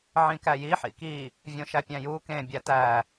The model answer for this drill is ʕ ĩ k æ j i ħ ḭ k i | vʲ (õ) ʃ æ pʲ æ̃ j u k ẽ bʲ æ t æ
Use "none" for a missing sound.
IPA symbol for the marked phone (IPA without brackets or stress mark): õ